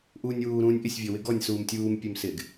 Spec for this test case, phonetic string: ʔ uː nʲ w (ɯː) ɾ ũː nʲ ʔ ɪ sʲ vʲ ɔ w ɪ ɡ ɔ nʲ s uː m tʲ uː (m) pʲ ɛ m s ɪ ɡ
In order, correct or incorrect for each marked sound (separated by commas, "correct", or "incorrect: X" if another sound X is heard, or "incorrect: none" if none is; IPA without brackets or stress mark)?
incorrect: uː, correct